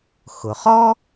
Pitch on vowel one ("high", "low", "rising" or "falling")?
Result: low